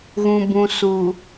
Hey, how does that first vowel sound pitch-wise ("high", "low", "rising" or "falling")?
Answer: low